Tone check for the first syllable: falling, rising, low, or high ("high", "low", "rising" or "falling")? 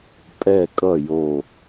low